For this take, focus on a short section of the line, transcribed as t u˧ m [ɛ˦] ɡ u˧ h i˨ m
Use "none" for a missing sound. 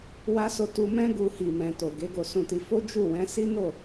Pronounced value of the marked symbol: ɛ̃˦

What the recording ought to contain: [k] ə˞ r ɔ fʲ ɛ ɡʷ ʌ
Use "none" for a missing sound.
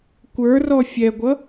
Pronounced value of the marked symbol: kʷ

